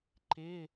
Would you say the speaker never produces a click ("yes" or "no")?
no